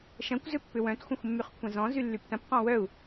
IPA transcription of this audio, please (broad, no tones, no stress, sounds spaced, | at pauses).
ʃ ɐ̃ kʷ z ʏ pː ʏ w œ̃ t xʷ ɐ̃ xʷ mː y χ kʷʰ ɐ̃ z ɔ̃ z y lː y p t ɐ̃ p q ɔ̃ w œ u̯